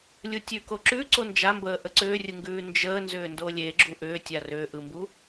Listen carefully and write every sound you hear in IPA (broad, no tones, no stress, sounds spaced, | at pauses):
lʲ u tʲ ʉ k o ǁ ʉ ǀ o n d͡ʒ a m b əː ʔ ə ǀ ʏː rʲ ɯ ŋ ɡ ʉː n d͡ʒ əː n z ʏː n d o lʲ e ɡ͡ǁ u ʔ ʏː tʲ a r ʏː ʔ ɯ m b u